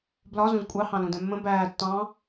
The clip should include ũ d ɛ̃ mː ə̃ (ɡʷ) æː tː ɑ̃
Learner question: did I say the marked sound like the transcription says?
no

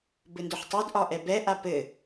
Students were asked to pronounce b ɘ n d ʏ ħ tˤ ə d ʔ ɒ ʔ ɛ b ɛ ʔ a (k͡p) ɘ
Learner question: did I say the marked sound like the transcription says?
no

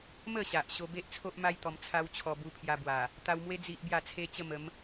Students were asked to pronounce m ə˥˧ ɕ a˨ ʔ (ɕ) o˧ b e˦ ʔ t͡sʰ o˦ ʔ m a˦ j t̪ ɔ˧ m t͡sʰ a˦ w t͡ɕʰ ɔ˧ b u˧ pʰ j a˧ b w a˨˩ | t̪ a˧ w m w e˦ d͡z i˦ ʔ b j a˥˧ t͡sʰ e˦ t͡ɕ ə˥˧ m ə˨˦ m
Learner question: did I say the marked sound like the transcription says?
yes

